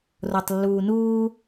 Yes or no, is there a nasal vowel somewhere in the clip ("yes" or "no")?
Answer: no